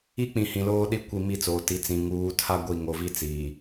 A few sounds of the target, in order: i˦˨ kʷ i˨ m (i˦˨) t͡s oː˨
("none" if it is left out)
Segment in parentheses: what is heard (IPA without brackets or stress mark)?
i˦˨